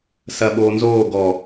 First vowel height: low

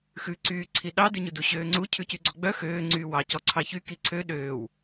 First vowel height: high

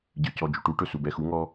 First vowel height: high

